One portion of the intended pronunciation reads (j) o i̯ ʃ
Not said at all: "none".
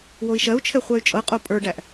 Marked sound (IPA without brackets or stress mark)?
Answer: w